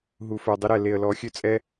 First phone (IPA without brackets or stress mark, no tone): ɦ